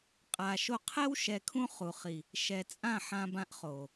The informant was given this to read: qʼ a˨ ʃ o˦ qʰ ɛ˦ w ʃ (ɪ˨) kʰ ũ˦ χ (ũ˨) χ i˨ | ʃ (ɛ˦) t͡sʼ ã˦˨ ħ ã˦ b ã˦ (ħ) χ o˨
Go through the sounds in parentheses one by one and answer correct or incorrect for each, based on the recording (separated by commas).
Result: incorrect, incorrect, incorrect, incorrect